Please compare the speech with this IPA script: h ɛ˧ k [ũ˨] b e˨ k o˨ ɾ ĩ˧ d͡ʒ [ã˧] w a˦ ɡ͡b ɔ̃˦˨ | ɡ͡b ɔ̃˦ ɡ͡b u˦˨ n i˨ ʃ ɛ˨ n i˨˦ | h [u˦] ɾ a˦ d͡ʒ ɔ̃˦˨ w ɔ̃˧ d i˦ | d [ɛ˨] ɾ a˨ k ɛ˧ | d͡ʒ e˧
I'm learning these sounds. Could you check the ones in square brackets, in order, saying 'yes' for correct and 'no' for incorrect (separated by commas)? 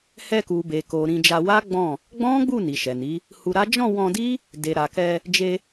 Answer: no, no, no, no